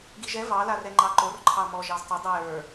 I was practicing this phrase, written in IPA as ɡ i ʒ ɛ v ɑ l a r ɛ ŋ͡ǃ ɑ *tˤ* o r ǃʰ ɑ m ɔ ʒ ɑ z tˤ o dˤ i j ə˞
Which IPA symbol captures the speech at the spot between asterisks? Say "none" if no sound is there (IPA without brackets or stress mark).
ǃ